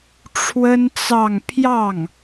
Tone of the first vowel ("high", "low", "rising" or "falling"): high